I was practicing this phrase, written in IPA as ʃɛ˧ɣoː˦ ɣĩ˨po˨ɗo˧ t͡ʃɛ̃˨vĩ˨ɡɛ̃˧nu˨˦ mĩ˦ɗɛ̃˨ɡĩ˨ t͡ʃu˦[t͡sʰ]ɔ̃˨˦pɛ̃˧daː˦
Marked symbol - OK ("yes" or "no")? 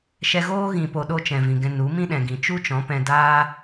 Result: no